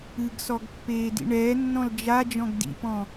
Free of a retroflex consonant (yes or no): no